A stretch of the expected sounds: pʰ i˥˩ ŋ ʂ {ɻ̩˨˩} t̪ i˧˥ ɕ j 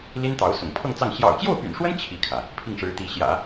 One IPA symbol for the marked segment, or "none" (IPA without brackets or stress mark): ɻ̩˧˥